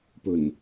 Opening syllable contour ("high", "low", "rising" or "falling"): low